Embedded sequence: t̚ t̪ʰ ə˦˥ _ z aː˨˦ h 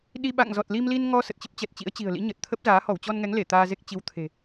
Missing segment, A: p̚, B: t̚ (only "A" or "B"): A